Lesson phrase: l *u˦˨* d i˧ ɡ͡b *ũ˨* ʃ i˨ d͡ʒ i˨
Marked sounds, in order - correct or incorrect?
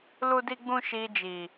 incorrect: u˧, incorrect: ũ˧

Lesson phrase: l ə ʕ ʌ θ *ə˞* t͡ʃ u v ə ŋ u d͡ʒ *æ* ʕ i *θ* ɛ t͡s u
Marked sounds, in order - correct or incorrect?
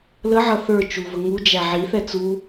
correct, correct, correct

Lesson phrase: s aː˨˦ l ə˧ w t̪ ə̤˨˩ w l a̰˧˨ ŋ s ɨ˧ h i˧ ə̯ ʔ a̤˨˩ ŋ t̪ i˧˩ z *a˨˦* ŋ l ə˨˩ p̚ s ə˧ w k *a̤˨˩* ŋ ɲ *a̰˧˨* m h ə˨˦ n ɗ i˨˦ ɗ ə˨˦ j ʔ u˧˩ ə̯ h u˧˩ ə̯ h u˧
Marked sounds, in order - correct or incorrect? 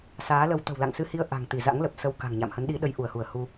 incorrect: a̰˧˥, correct, correct

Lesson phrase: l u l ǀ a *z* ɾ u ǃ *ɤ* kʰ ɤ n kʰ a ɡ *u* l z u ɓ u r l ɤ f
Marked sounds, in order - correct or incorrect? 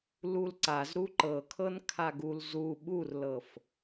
correct, correct, correct

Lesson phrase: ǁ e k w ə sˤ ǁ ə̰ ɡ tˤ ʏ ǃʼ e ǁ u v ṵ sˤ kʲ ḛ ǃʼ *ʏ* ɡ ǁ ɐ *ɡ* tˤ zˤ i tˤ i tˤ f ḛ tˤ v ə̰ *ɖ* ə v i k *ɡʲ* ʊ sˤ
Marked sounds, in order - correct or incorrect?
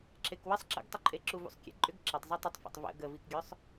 correct, incorrect: none, incorrect: ɡ, correct

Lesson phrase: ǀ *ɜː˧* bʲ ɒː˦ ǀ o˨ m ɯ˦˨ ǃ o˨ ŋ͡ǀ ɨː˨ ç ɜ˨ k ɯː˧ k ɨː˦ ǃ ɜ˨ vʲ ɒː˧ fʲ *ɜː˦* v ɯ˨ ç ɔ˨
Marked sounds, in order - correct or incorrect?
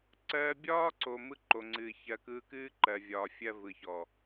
correct, incorrect: ɜ˦

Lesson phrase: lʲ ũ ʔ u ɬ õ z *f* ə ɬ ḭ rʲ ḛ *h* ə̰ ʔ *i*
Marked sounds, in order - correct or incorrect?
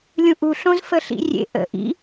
correct, incorrect: ʔ, incorrect: ḭ

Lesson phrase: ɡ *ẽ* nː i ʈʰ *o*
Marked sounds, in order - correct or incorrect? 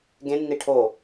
correct, correct

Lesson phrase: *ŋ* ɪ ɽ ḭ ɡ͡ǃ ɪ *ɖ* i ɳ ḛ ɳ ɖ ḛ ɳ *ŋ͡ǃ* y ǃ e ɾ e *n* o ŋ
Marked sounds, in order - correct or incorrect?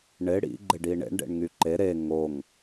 incorrect: ɳ, correct, incorrect: ŋ, incorrect: ŋ

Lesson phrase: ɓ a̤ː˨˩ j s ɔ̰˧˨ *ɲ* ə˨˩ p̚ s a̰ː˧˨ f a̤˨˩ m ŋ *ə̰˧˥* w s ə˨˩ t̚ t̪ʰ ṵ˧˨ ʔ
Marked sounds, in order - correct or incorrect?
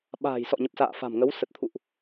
correct, incorrect: ə˨˦

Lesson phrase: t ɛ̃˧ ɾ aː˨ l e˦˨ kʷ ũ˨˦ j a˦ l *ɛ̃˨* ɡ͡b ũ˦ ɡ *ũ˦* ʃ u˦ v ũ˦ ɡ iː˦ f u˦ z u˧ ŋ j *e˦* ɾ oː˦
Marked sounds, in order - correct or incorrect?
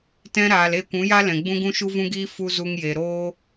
correct, correct, incorrect: e˨

